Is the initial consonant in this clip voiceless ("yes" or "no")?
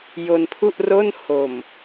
no